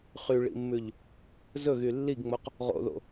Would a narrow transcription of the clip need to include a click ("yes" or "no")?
no